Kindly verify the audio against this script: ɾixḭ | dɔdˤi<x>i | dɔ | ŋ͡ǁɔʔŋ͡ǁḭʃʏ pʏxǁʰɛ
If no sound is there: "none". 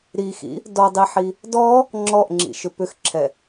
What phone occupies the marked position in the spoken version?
ħ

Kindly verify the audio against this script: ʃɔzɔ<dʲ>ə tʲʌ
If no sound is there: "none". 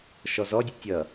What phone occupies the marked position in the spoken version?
dʲ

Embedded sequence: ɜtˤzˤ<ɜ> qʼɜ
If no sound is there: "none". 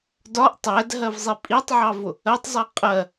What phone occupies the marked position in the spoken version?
ɛ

